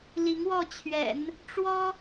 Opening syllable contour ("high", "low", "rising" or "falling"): rising